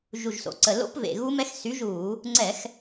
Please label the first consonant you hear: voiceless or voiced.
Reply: voiced